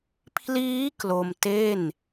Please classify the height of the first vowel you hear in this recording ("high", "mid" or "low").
high